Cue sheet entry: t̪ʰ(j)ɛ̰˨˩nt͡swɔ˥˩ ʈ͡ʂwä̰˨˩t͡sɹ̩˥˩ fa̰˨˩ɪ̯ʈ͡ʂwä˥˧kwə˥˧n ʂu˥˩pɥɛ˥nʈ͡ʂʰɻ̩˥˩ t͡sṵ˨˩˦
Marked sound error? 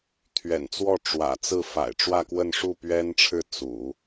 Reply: yes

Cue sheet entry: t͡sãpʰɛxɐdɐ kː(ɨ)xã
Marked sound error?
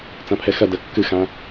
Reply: no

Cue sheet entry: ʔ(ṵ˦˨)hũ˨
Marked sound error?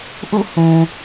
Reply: no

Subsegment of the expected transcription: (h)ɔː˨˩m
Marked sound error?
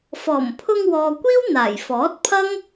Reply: yes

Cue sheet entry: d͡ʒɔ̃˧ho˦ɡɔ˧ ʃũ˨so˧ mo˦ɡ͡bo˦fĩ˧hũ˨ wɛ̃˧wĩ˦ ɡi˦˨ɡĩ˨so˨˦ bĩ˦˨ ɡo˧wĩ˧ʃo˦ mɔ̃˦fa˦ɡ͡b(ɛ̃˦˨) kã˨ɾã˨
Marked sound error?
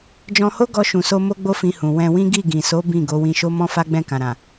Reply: no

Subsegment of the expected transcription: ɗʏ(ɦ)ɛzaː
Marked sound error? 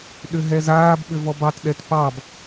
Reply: no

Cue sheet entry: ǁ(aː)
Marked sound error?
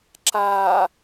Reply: no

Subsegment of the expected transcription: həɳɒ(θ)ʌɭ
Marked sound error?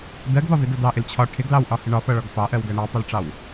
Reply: yes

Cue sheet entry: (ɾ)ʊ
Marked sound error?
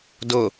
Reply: yes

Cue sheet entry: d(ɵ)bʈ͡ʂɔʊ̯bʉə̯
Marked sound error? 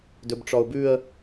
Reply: no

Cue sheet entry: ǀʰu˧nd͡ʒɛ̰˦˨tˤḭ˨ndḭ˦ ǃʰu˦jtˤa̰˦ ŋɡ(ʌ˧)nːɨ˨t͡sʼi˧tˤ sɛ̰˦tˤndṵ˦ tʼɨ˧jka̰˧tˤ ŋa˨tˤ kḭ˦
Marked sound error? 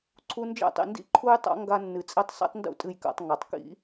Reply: yes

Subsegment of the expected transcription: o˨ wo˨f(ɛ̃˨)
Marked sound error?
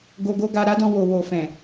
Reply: no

